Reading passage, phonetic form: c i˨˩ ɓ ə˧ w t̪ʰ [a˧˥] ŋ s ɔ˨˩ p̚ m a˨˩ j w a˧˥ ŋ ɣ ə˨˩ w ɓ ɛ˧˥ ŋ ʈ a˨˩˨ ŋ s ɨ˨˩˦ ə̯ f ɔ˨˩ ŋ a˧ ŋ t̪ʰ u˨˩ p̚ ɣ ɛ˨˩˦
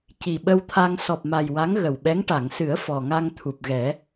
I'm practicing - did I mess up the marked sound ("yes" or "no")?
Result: yes